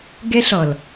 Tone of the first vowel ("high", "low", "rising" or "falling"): high